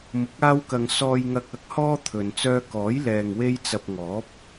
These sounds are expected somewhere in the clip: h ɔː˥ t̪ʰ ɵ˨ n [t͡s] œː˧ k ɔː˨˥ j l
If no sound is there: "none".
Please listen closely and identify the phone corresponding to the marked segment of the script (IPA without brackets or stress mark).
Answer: t͡s